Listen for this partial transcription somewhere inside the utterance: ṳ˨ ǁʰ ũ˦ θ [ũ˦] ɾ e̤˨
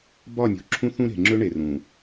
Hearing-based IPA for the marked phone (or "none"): ũ˦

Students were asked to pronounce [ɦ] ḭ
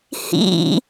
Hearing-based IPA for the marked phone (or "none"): h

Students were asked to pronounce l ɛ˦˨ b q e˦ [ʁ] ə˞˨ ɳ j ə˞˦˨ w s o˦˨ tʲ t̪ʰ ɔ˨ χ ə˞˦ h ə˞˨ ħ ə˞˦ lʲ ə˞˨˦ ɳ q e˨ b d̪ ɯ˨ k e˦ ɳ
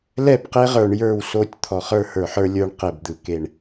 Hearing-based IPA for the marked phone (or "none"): ʁ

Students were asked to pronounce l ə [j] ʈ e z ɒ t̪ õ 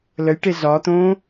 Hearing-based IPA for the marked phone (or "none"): j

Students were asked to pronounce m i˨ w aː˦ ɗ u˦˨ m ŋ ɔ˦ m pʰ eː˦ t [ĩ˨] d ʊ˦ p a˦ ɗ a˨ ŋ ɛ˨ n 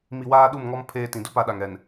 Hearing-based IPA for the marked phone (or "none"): ĩ˨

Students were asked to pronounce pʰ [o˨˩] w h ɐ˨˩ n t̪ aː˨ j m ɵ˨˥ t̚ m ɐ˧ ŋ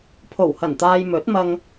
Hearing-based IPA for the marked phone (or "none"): o˨˩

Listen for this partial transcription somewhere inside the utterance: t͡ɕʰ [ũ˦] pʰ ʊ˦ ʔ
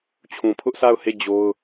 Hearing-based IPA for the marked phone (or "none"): ũ˨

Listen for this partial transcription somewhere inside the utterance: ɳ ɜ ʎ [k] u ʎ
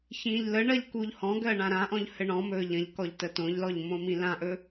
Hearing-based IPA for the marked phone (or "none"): k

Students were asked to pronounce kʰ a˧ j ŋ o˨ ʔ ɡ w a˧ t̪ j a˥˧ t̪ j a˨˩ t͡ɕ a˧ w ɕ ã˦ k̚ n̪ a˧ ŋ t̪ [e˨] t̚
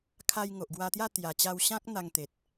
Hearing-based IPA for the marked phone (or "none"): e˨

